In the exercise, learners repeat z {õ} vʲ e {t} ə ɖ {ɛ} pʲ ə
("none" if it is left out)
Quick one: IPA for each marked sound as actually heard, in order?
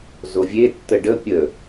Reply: o, tː, ə

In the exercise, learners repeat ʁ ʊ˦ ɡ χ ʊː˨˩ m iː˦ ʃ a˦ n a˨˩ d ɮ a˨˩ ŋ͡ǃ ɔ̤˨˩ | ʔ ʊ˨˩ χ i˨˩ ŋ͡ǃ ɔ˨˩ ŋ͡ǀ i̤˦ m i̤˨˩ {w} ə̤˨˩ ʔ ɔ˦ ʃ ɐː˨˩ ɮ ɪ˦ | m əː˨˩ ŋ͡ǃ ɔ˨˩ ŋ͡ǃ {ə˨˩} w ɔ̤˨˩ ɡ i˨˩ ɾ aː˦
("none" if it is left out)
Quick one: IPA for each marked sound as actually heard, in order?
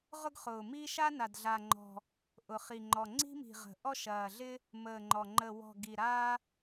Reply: ʁ, ə˨˩

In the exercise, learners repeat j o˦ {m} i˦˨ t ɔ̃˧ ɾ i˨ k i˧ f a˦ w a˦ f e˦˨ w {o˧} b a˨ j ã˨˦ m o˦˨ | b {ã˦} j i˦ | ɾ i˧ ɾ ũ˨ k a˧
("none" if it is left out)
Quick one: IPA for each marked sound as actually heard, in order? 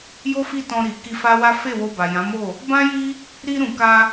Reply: f, o˧, ã˦

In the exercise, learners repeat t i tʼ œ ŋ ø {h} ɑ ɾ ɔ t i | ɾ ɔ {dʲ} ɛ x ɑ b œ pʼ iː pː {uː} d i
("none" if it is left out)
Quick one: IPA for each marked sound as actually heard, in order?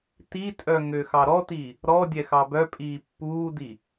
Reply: x, dʲ, uː

